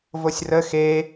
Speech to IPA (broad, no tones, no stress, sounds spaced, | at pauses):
v o sʲ r ə x e